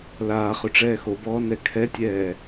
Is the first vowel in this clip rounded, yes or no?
no